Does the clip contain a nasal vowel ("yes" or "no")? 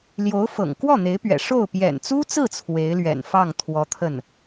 no